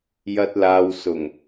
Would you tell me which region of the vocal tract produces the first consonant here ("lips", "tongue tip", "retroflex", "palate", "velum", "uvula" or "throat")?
palate